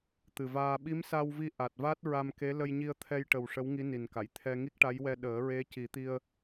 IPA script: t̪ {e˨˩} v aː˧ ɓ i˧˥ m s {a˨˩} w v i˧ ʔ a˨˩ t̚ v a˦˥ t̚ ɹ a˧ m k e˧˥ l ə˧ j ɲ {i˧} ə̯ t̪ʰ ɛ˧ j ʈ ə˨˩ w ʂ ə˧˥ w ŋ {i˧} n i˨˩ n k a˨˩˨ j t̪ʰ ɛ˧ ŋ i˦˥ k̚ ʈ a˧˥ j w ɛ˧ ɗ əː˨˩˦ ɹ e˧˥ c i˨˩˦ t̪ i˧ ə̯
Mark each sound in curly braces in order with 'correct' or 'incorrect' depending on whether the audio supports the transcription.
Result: incorrect, incorrect, correct, incorrect

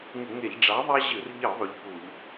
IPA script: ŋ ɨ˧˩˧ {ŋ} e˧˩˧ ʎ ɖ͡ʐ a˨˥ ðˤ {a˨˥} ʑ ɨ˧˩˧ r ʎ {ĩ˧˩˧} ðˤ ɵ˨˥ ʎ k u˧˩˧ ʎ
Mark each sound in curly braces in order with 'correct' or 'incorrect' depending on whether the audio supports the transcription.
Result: correct, incorrect, incorrect

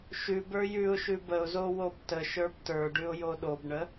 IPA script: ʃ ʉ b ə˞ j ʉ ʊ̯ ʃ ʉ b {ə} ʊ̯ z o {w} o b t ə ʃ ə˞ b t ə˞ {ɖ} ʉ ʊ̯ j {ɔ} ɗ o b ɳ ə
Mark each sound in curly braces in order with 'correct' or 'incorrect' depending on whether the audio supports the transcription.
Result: correct, correct, correct, incorrect

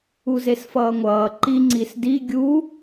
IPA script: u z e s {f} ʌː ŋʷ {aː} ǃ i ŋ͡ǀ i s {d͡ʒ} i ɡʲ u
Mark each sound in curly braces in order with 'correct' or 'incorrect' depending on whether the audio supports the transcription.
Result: correct, incorrect, incorrect

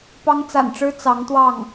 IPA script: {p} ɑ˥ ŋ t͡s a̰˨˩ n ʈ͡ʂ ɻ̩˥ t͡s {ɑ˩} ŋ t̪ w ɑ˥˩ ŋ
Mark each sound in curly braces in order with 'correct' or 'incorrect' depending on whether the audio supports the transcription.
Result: correct, incorrect

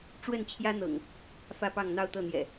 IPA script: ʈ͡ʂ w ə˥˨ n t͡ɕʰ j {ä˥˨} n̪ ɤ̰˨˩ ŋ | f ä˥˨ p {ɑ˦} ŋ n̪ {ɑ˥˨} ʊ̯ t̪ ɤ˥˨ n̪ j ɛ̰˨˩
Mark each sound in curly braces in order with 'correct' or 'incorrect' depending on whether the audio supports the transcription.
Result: incorrect, incorrect, correct

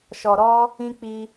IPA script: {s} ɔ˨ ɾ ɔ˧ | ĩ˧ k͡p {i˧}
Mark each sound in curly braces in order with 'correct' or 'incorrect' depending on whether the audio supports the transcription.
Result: incorrect, correct

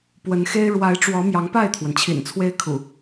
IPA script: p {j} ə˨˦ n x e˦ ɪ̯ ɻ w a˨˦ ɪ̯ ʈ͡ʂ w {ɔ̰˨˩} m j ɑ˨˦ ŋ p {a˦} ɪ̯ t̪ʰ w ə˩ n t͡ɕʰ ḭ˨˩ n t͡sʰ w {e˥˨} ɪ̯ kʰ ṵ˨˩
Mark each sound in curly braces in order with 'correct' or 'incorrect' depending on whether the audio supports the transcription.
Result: incorrect, incorrect, incorrect, incorrect

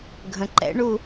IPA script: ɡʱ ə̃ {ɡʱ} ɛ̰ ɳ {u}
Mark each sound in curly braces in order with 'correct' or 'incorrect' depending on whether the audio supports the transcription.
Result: incorrect, correct

